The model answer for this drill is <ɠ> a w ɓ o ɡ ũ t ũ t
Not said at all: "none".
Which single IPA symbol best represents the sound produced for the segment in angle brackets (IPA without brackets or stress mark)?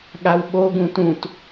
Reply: ɠ